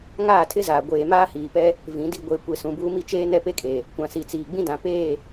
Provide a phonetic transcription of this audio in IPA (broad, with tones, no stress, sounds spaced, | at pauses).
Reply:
ŋ aː˦˨ tʰ ɪ˦ z aː˨ ɡʷ eː˨ m aː˦ h iː˨ p ɛ˦ | v ĩ˨˦ d i˦ ɡʷ e˨˦ kʷ e˨ s ũ˨ b uː˦ m i˦ t͡ʃ eː˦ n ɛ˦ p e˦ kʼ e˨ | kʷ ã˨ s i˨ t͡s iː˨ ɡ͡b ĩ˦ d ã˨ p eː˦˨